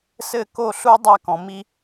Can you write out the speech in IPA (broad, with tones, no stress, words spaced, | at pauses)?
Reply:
sɘ˦˨ko˦˨ ɬu˦ dˤa˦˨kɔ̃˨ mi˧